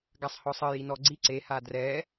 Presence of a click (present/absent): present